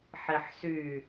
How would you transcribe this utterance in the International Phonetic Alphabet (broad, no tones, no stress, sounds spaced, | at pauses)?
ħ i ħ s y